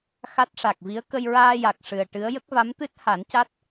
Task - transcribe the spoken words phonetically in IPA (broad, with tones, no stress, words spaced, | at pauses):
xa˦˥t̚ʂa˨˩k̚vi˧˥ə̯ kə˧jɹaː˧ja˨˩k̚ ʂɨ˨˩ə̯ʈɨ˧˥ə̯ jə˦˥k̚va˧˥m t̪ɨ˦˥t̚ ha˨˩˦nca˦˥t̚